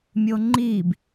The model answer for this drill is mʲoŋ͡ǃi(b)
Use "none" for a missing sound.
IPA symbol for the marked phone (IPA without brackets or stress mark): b